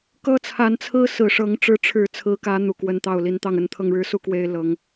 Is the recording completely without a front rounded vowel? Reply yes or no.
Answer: yes